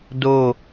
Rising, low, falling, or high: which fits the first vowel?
falling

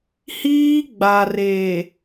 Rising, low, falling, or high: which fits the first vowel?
high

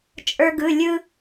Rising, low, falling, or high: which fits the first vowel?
high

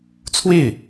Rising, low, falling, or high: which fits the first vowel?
falling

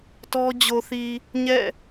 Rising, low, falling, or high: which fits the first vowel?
high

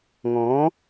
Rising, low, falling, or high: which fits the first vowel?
rising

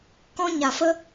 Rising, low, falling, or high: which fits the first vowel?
high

